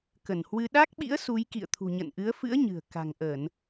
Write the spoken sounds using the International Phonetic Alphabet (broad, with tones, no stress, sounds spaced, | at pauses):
k ə˧˩ n h w ɨ˧ ɗ a˦˥ k̚ ɓ ḭ˧˥ ə̯ s u˨˦ j k ḭ˧˨ ə̯ t̪ʰ ṳ˨˩ ɲ ə̰˧˨ n ʔ ɨ˨˦ ə̯ f ɨ̰˧˥ ə̯ ɲ ɨ̤˨˩ ə̯ k a̤˨˩ ŋ ʔ ə˧˩˨ n